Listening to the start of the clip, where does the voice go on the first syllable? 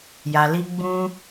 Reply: low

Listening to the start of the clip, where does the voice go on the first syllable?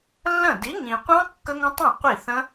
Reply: falling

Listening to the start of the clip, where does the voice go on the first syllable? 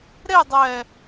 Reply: falling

